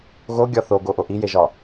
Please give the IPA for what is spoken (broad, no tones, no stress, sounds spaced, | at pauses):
ɣ o ɡʲ ɒ θ o ɡ o ʔ o ʔ i j e ʒ ɒ